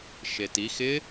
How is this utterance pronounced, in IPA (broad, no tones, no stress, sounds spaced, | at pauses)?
ʃ e t i x ɪ